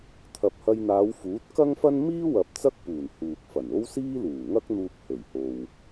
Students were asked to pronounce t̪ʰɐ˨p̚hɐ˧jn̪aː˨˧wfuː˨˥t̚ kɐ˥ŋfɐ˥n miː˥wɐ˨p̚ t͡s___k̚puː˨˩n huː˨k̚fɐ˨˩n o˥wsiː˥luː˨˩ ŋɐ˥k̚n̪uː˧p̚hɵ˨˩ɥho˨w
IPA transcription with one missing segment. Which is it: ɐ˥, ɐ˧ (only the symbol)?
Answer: ɐ˥